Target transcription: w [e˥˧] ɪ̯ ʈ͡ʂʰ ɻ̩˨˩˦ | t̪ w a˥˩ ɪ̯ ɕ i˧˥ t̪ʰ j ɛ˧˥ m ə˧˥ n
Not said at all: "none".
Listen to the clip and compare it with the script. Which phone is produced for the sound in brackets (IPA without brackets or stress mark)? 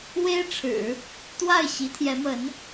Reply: e˥